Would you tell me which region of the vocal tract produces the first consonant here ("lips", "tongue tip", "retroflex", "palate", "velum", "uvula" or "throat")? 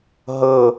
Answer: throat